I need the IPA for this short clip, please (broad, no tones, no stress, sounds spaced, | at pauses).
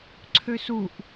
ǀʰ ø s u ʔ